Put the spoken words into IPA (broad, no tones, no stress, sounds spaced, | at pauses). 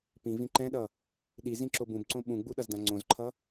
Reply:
p ĩ v ĩ ǃ ɛ̃ ɗ ʌ | ɗ i z ĩ ǁ o b ũ b ǀ õ ɓ ũ ɡ͡b u ɗ ʌ z d ã ŋ͡ǀ õ z ǃʰ ʌ